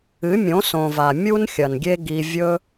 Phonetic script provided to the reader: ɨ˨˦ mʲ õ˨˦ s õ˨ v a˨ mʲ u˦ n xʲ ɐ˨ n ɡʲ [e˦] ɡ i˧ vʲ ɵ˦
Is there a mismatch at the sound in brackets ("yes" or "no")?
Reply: no